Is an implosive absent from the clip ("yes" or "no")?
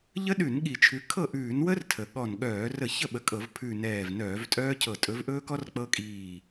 no